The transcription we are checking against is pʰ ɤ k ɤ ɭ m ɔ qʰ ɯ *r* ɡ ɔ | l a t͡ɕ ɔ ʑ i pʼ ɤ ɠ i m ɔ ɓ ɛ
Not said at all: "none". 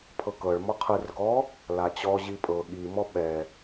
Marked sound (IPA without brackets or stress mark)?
r